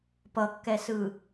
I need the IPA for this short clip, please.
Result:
p ʌ kː ɛ s ɯ

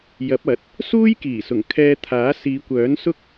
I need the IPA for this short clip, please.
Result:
j ɐ˨˥ p̚ ɐ˨˥ t̚ | s uː˥ j k iː˨˩ s ʊ˨˩ ŋ kʰ ɛː˧ t̪ʰ aː˨˥ s iː˨˧ kʷ œː˨˥ n s ʊ˥ k̚

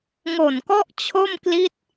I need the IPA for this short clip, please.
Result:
ŋ o˨˩ n k ɔ˥˩ ʔ t͡ɕʰ o˥˩ m k l i˥˩ t̚

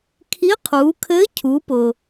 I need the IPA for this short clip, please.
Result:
kʰ i˧˥ qʰ uː˩˧ kʰ ɘː˧˥ cʰ u˩˧ p ʊ˩

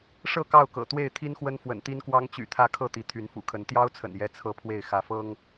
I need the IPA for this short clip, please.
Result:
ʂ ɤ˥˨ k ɑ˥˨ ʊ̯ k ɤ̰˨˩ t̪ w e˥˨ ɪ̯ t̪ʰ i˦ n x w ə˦ n f w ə̰˨˩ n t̪ i˦ n k w ɑ˦ ŋ t͡ɕ y̰˨˩ t̪ʰ ä˥˨ kʰ ɤ˥˨ t̪ i˨˦ t̪ʰ y˨˦ n f ṵ˨˩ kʰ ə˨˦ n t̪ j ɑ˦ ʊ̯ t͡sʰ ə̰˨˩ n j ɛ˦ t͡sʰ ɤ˦ pʰ w e˥˨ ɪ̯ x ä˨˦ f ɤ˦ ŋ

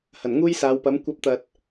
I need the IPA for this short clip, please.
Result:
h ɐ˨˩ n ŋ uː˥ j s aː˨˧ w p ɐ˨˥ m kʷ ɐ˨˥ p̚ t̪ ɐ˨ t̚

